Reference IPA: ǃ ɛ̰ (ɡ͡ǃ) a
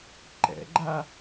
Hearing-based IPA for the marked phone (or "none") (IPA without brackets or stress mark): ɡ͡ǃ